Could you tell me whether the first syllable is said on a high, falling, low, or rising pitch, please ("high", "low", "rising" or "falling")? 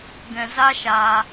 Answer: low